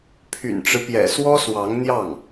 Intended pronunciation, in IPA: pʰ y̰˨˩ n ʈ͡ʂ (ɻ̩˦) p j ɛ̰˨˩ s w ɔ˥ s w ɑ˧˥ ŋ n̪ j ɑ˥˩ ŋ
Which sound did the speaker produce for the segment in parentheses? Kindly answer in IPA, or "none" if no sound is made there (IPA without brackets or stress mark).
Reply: ɻ̩˦